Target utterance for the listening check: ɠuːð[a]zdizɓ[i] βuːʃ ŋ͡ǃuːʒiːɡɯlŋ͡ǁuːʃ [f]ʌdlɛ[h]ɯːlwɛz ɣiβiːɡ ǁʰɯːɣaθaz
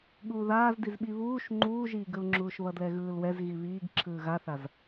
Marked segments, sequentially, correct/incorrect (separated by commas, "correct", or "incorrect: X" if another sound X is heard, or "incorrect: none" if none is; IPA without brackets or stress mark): incorrect: aː, correct, incorrect: β, incorrect: ɣ